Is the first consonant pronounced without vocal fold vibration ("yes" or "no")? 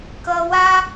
yes